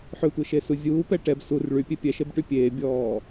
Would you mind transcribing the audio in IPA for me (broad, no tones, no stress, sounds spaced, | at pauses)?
ħ ʏ tʷ e ʃ e s u zʲ uː p ɛ ʈ ɛ b s u r ɭ y pʲ e pʲ ɛ ʃ e b ʈ y pʲ eː bʲ ɔː